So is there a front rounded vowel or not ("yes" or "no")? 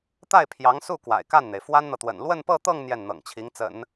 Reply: no